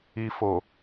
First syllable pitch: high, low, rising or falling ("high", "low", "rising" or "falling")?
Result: low